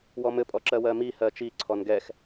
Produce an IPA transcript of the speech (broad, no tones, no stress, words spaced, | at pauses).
wɔmɘ pʼɔǁɜwɜmi hɜt͡ʃi ǀʰɔnɡɛx